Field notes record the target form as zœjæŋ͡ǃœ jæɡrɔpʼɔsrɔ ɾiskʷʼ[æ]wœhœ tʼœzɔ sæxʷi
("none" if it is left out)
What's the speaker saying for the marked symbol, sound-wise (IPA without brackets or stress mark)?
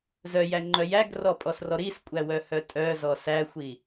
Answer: æ